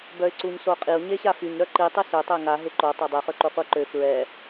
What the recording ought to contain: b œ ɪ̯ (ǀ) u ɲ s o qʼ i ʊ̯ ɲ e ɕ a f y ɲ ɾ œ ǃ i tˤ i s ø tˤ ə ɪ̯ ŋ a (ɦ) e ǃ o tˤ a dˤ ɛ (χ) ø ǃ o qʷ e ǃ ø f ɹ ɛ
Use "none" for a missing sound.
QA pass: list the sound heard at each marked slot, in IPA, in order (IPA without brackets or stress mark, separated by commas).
ǀ, ɦ, χ